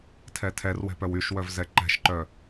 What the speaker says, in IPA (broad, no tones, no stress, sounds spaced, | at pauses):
tʰ ɛ tʰ ɛ r w ɛ̤ p œ w y ʃ w œ v z ɛ ǃ ɛ̤ ʃ ǃ œ